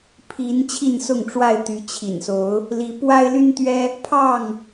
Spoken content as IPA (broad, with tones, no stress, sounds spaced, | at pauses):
pʰ i˨˦ n t͡ɕʰ i˥˨ n s ʊ˥˨ ŋ ʈ͡ʂ w a˥˨ ɪ̯ t̪ y˨˦ t͡ɕʰ ḭ˨˩ n s o˨˦ ʊ̯ | l i˨˦ p w a˦ ɪ̯ l y˦ n t̪ ɥ ɛ˦ | pʰ ɑ˥˨ ŋ